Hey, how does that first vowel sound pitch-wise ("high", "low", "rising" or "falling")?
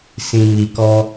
low